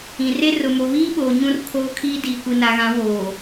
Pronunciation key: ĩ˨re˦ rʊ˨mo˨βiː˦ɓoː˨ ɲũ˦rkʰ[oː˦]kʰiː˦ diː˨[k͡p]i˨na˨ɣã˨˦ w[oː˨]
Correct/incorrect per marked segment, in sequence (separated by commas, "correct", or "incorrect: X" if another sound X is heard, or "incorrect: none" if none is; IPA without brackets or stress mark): correct, incorrect: kʷ, correct